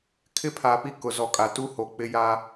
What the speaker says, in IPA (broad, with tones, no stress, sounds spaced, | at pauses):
kʰ ɪ˦ pʰ a˨ p i˦ k ʊ˨ z ɔ˨ kʼ a˨ t u˦ h o˨ k͡p ɪ˦ j a˦